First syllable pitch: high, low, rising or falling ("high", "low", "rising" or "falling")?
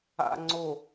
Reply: low